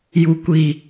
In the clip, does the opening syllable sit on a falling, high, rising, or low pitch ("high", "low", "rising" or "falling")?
low